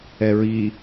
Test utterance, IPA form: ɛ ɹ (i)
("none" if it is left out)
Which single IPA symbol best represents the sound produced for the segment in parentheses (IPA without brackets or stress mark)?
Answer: i